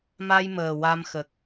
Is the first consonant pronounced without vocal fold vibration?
no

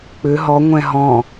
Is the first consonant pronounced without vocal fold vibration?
yes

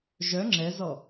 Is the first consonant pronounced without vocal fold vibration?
no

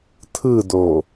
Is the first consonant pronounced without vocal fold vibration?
yes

